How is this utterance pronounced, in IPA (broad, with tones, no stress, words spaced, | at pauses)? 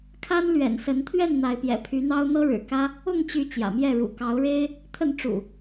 kʰa˦nlɥɛ̰˨˩nsə˨˦nt̪ʰɥɛ˥˨n n̪a˨˦ɪ̯pjɛ̰˨˩pʰy˨˦n̪ɑ˦ʊ̯ n̪ɤ˦ɻɻ̩˨˩kä˦ | ʊ˥˨ŋt͡ɕy˨˦ t͡ɕjä̰˨˩mjɛ˥˨ɻṵ˨˩ kɑ˨˦ʊ̯ɻe˦ɪ̯ | t̪ʰə˥˨n ʈ͡ʂṵ˨˩